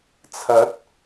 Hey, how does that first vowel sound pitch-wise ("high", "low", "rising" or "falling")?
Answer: rising